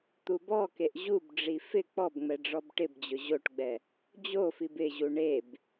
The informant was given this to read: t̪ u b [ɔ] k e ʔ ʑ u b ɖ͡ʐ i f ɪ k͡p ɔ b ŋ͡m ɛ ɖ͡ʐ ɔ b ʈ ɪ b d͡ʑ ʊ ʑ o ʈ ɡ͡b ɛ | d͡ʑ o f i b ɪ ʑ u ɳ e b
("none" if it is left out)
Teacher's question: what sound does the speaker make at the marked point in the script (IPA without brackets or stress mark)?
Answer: ɔ